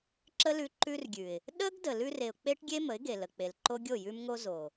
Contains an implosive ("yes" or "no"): yes